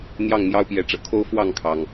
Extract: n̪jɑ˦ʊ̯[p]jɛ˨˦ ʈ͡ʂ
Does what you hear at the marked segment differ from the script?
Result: no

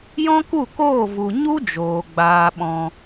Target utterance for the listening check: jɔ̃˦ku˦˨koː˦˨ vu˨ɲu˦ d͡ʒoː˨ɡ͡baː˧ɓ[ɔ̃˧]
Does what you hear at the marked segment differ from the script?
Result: no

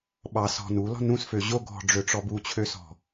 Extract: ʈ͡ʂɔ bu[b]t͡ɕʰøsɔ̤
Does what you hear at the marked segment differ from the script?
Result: yes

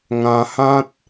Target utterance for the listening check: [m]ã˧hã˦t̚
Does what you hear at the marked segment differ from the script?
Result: yes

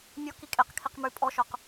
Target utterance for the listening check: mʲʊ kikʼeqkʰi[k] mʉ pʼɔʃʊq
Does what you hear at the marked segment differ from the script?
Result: yes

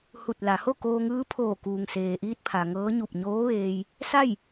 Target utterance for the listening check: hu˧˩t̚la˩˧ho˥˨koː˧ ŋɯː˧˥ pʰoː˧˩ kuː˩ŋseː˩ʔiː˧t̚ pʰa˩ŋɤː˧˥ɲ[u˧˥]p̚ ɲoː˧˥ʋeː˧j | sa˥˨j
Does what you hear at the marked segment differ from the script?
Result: yes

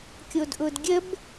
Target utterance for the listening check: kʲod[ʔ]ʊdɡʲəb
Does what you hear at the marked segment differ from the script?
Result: no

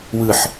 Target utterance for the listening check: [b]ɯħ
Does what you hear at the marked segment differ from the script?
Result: yes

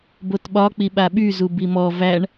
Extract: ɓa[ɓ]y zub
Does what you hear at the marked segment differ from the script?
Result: no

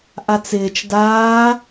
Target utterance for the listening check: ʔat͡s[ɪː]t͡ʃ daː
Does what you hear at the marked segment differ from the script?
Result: no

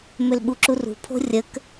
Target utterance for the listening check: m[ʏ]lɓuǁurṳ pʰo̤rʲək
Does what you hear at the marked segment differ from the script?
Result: no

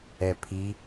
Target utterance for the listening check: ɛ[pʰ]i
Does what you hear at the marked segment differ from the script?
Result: no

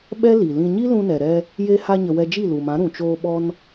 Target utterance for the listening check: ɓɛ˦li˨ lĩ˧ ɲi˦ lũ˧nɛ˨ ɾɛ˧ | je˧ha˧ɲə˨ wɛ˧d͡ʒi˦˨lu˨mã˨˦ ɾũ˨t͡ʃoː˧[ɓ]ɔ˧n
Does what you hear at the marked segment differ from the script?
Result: no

